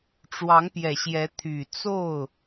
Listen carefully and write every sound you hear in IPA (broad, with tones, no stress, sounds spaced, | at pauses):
ʈ͡ʂ w ɑ˧˥ ŋ p j ɛ˨˩ ɕ j ɛ˧˥ t̪ʰ y˨˩ t͡s o˥˩ ʊ̯